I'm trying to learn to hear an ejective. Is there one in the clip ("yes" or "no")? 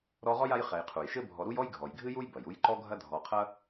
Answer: no